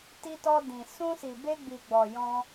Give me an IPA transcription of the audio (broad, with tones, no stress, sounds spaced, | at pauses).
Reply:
t i˧ t ɔ˧ d ĩ˨ s ũ˧ s i˨ b e˧ ɡ͡b i˨ ɡ͡b ɔ˨ j ɔ̃˧